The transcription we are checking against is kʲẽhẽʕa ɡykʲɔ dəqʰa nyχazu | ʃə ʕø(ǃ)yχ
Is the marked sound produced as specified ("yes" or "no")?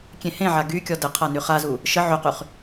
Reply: no